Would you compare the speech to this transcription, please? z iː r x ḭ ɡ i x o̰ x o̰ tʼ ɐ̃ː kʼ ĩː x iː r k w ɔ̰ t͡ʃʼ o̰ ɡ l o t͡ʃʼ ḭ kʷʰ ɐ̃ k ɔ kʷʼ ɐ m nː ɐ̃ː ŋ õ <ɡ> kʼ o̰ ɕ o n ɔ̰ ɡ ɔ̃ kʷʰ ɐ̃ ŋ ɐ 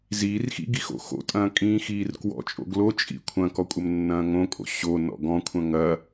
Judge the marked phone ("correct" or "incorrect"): incorrect